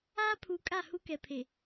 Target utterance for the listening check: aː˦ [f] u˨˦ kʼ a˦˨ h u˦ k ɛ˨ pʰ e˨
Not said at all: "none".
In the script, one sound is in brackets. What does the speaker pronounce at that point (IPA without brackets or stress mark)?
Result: pʰ